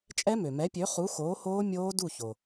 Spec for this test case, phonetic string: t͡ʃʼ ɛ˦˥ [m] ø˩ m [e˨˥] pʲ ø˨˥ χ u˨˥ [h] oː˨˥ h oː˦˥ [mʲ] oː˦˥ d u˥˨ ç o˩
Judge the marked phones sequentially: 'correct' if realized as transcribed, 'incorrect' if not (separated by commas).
correct, incorrect, incorrect, correct